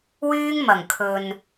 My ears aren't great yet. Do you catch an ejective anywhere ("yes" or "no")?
no